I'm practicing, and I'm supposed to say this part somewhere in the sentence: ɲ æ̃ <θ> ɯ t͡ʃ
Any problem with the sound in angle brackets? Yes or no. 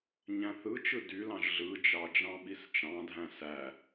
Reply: no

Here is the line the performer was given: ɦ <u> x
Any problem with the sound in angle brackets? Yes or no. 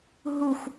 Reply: no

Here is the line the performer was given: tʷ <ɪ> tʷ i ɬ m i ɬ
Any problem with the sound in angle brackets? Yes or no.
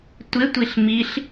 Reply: no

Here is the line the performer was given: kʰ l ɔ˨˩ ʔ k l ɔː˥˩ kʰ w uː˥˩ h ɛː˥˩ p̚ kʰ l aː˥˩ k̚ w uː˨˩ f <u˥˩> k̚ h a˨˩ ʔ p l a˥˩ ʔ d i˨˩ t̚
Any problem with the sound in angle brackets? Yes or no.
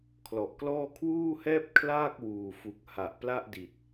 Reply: yes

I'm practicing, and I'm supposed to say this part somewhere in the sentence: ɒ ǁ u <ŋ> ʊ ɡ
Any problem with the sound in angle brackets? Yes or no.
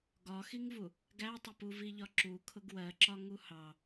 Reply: yes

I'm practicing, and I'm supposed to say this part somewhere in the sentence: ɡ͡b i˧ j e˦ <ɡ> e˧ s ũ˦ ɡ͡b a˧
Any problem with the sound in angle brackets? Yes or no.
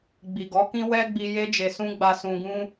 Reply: yes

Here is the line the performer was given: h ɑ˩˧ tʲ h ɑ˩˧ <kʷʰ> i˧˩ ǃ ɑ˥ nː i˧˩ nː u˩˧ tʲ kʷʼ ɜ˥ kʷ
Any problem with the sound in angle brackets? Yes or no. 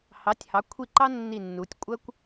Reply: no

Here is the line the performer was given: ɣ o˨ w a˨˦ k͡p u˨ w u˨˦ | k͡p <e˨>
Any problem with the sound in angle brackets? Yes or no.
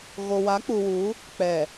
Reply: yes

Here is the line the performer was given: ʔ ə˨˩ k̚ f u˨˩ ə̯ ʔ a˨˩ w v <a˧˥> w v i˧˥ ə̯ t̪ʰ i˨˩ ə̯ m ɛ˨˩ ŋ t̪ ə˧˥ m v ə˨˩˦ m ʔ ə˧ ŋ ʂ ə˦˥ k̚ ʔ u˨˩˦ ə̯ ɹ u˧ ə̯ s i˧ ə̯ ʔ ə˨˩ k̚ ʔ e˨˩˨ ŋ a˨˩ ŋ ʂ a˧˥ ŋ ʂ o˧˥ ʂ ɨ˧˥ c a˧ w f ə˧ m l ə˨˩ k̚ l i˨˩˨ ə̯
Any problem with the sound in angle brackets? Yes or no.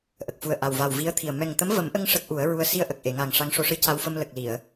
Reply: yes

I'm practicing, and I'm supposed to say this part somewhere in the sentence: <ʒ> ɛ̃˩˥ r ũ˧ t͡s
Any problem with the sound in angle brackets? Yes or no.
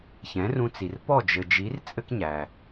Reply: yes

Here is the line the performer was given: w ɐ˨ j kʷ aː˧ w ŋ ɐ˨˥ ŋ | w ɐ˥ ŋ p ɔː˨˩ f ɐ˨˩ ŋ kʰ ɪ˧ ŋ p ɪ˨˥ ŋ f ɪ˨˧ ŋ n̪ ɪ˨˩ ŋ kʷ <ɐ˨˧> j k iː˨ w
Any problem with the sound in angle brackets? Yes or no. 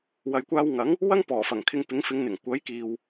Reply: yes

